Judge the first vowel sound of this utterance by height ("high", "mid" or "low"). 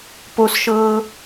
mid